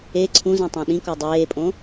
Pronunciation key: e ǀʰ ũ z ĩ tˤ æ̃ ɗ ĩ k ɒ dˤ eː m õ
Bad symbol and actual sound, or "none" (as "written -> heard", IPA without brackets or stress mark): m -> pʼ